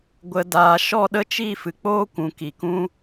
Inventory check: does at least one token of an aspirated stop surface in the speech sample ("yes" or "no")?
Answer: no